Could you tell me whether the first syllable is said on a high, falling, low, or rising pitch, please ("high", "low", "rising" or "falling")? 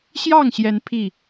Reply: falling